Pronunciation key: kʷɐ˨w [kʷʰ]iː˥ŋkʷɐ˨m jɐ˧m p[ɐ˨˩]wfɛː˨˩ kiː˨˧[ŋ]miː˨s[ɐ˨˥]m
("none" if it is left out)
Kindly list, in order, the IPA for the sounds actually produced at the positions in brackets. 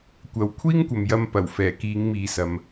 kʷʰ, ɐ˨˩, ŋ, ɐ˨

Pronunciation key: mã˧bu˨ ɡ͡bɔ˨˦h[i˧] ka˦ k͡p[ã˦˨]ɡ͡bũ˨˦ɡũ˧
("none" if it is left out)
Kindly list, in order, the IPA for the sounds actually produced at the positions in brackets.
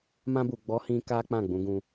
ĩ˧, ã˦˨

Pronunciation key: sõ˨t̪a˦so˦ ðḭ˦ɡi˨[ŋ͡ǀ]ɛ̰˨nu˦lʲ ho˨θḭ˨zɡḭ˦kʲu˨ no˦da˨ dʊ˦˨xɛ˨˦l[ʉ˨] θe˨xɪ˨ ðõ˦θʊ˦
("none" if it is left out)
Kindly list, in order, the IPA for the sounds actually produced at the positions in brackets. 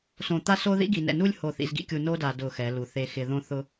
n, u˨

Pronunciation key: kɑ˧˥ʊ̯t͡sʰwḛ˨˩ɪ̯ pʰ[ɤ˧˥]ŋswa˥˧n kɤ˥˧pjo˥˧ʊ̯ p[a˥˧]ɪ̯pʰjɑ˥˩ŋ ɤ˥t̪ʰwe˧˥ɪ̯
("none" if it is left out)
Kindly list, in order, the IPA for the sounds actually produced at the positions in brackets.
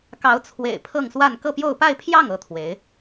ɤ˥˧, a˥˧

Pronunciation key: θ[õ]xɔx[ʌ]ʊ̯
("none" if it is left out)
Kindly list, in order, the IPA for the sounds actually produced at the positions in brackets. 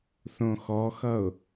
õ, ʌ

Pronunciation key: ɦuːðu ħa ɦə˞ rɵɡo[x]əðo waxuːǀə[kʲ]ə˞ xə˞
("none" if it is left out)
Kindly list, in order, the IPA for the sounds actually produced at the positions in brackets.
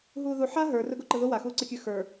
ǃ, kʲ

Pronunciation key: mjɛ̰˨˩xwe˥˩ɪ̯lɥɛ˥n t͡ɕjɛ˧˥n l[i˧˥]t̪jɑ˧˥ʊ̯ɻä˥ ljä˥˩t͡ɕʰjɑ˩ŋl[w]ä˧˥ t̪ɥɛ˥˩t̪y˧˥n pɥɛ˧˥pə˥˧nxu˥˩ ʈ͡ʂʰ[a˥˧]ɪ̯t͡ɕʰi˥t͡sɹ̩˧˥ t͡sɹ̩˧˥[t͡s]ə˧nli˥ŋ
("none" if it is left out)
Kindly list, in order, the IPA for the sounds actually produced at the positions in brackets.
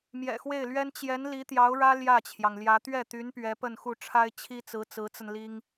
i˧˥, j, a˥, t͡s

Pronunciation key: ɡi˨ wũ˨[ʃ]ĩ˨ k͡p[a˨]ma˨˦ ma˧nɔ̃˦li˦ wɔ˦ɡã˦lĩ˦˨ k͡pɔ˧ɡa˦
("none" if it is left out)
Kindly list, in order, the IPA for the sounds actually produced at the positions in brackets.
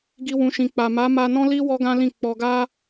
ʃ, a˨

